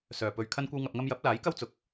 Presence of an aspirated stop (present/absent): present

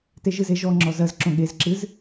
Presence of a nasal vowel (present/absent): present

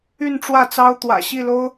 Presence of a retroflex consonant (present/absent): present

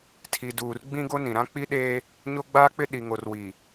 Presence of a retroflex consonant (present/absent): absent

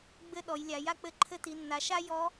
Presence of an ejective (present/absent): absent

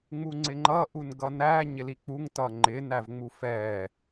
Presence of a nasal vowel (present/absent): absent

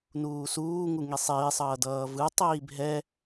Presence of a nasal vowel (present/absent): absent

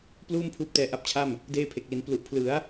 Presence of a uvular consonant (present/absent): absent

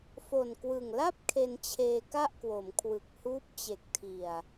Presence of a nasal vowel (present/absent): absent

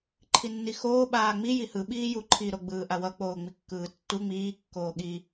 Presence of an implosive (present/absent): present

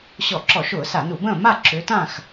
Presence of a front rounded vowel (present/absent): present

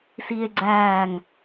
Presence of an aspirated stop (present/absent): absent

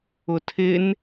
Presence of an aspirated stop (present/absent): present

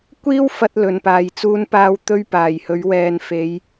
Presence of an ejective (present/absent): absent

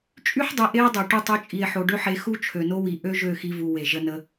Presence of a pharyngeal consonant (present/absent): present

